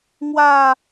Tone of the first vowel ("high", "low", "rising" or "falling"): falling